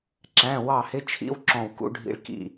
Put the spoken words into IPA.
ǁ æ̃˧˥˧ w ɑ˦˨ h ɪ˧˥˧ t͡ʃʰ ḭ˦˥ w ǁ ɔ̃˦˨ w k ṵ˦˥ ɖʱ ḭ˦˥ ɭ k ḭ˦˨

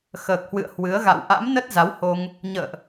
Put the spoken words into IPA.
x əː˨˩ k̚ h w ɨ̰˧˨ ə̯ h w ɨ˨˦ ə̯ ɣ a̰˧˨ w ʔ a̰˧˥ m n ə˦˥ t̚ z a˨˦ w h o˧ ŋ | ɲ ə̰ː˧˨ ʔ

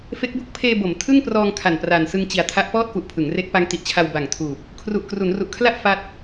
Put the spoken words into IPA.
f e˦˥ k̚ b o˥˩ k̚ pʰ eː˧ b o˩˦ m tʰ ɯ˥˩ ŋ p r ɔː˧ ŋ kʰ a˨˩ n p r a˨˩ n s ɯ˧ ŋ t͡ɕ i˨˩ a̯ tʰ a˦˥ ʔ p ɔː˥˩ t̚ f u˨˩ ʔ pʰ ɯ˩˦ ŋ r e˦˥ k̚ p a˦˥ ŋ t i˨˩ ʔ t͡ɕʰ a˧ w b a˨˩ ŋ tʰ uː˨˩ p̚ | kʰ r u˨˩ ʔ k r u˩˦ n r u˨˩ ʔ kʰ l a˥˩ ʔ f a˥˩ t̚

